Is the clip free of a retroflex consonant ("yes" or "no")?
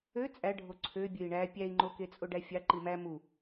no